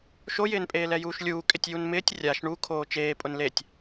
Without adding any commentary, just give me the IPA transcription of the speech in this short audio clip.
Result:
ʃ o j ɪː n pʼ eː l ɛ j uː ʃ lʲ uː kʼ ɪ tʲ j u n m ɪː tʲ rʲ a ʃ ɳ u kʰ oː t͡ʃ eː pʼ ʊ n l e tʲ

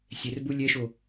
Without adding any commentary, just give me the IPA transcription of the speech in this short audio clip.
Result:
sʲ ɛ r b u lʲ ɛ ʃ o

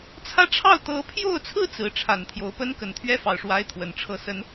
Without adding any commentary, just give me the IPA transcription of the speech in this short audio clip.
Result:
t͡sʰ ä˥˧ ʈ͡ʂʰ ɑ˥˩ ʊ̯ t̪ ɤ˧˥ pʰ j o˥˩ ʊ̯ t͡sʰ ɹ̩˥ t͡s ɹ̩˧˥ ʈ͡ʂʰ a˨˩ n t̪ʰ j o˧˥ ʊ̯ p ə˥ n k ə˨˩ n t̪ʰ ɥ ɛ˥ f ɑ˥˩ ʊ̯ ʂ w a˥ ɪ̯ t̪ʰ w ə˨˩ n ʈ͡ʂʰ ɤ˥˩ s ə˧˥ n

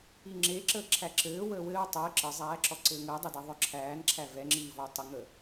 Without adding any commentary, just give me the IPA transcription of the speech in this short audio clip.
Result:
i ŋ͡ǁ e ǁ əː ǁʰ æ ǁ ɘː w əː w ɘː w tˤ ɘː ǁ ə zˤ æː ǁ ɔ ǀ ɘː ŋ əː dˤ i d ɛ ðˤ œ ǁʰ æː n ǁʰ æ v ɛ ŋ͡ǁ iː v ɔ tˤ ə ŋ ə

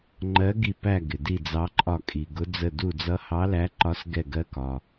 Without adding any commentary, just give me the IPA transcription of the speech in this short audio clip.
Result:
ŋ͡ǃ ɜ˨˦ ɡ i˧˩ p æ˧˩ ɡ ɪ˩ d i˧˩ d͡z ɑ˨˦ ǃʼ ɒ˧˩ kʼ i˩ ɡ ʊ˨˦ d͡z ə˧˩ d u˧˩ d͡z ʌ˨˦ h ɑ˨˦ l æ˨˦ ǃ ɒ˨˦ s ɡ ɛ˧˩ ɡ ɜ˨˦ k ɒ˩

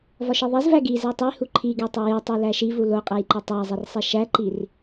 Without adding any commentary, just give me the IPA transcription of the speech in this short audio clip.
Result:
v ɒ ʃ i ðˤ i z v æ ɡ i z e tˤ i h u ǃʰ i ɡ e tˤ i j e tˤ e l æ ʃ i v u l o qʼ æ j ǃ o tˤ æ zˤ i r sˤ i ʃ æ ǃ i r

